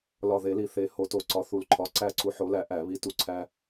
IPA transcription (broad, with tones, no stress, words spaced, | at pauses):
lɒ˨˩ ðe˨˩˦li˨˩ θe˨˩˦ ho˨˩˦to˨˩ǀɒ˨˥ θu˨˩lǃʰɒ˨˥ ǀæ˥˨ǀu˦ ħo˨˥læ˨˥ ʔæ˨˩˦βi˨˥ tu˨˩ǀʰæ˦